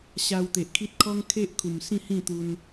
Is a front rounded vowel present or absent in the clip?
absent